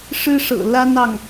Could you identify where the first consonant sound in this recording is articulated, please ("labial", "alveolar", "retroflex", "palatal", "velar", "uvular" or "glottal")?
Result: retroflex